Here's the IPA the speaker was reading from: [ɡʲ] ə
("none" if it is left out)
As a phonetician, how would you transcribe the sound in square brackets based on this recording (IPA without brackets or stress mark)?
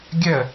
ɡʲ